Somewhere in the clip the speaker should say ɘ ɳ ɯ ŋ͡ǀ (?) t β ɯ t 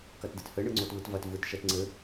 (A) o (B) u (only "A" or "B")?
A